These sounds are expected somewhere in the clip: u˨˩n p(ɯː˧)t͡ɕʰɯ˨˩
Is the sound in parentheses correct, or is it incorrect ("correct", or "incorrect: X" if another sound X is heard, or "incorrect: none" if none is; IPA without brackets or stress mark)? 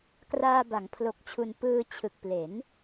correct